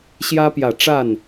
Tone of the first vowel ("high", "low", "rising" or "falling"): high